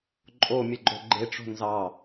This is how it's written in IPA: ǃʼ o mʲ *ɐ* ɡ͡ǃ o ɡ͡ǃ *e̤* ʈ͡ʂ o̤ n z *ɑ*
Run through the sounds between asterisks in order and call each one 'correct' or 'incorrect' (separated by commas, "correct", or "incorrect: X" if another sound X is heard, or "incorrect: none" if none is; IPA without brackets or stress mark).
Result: incorrect: ə, incorrect: e, correct